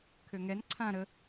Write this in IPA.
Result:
kʰ ø ŋ ɛ n ǀʰ ã ɾ ə

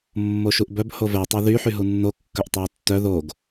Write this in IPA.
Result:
mː o ʃ u ʔ b œ b h o v ɛ tˤ o ð y ħ y ɦ u nː o kː œ ʔ tˤ e y̯ tː œ ð o ɡ

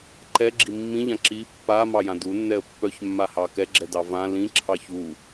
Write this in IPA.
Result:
ǃ ɛ ɡ͡ǁ i mː ĩ ʎ ã ǁ i pː a m ɑ j ã d u nː ɛ ə̯ pː œ ç mː a h ɑ k ɛ ɡ͡ǁ ɛ d ɑ v ã l ĩ ǁʰ ɑ ç u

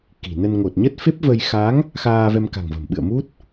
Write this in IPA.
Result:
k i̤˨˩ n ə˧ n ŋ o˨˩ t̚ ɲ ə˦˥ t̚ f e˦˥ p̚ v ə˧ j x a˨˦ ŋ | x aː˧ v ɛ˧ m k a̤˨˩ ŋ v ə̤˨˩ m ɓ ɨ̰˧˨ ə̯ m u˦˥ t̚

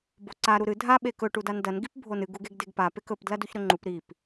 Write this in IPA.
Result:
b o ǀ a ɾ u ɾ ɨ dʱ a ɓ e k ɵ ʈ u d a n d ɐ n ɡ i p bʱ o n ɨ ɡ u ɡ e ɡ d e ɡ p a p e k ɵ p d l ɐ d u ç ɾ ɵ ŋ͡ǃ u p ɾ i p

